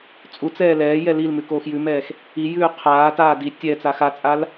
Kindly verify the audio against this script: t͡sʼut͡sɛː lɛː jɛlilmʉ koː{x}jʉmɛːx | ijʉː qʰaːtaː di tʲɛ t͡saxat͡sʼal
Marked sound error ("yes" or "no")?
no